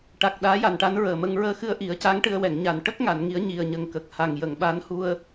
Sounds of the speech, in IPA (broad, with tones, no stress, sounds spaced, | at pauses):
ʈ a˨˩ k̚ ɗ aː˧˥ j a˨˩ n ʈ a˧˥ n ɹ əː˨˩ m ə˧ ŋ ɹ əː˧ x ɨ˧ ə̯ ʔ i˨˩˦ ə̯ c a˧˥ ŋ ʈ ɨ˧ ə̯ w ɛ˨˩˨ ŋ ɲ a˨˩ n ʈ ə˦˥ k̚ ŋ a˨˩˨ n ŋ i˨˩˦ ə̯ ɲ i˨˩ ə̯ ɲ ə˨˩ ŋ k ə˨˩ k̚ h a˨˩ ŋ j ə˨˩˨ ŋ ɓ a˧˥ n h u˧ ə̯